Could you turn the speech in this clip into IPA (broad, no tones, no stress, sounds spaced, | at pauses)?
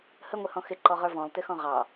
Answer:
h ə ŋʷ ɪ h ɔ̃ x ɪ ǃ ɔ ʁ ə˞ v ɔ̃ lˠ t ɪ x ɔ̃ ʁ ɑ